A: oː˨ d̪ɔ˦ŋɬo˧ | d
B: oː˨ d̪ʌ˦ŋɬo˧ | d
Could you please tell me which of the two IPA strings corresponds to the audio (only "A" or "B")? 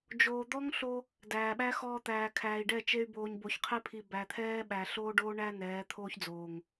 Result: A